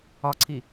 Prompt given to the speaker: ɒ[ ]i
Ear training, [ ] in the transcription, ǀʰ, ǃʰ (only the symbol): ǀʰ